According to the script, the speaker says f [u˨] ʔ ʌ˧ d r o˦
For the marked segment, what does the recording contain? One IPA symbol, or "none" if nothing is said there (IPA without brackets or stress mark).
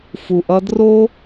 u˨